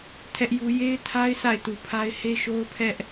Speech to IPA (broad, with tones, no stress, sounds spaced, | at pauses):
tʰ ɛ˦ ʔ j u˦ j e˦ ɪ̯ tʰ a˦ ɪ̯ sʰ a˦˨ ɪ̯ t u˨ pʰ a˦ ɪ̯ h e˦ ʃ o˦ ʊ̯ pʰ ɛ˦ ʔ